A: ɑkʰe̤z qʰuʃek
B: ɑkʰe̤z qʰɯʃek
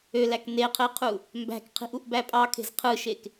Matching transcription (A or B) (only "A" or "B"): B